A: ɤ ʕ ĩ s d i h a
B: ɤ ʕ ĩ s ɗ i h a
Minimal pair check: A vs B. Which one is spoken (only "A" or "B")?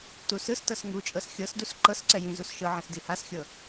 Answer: A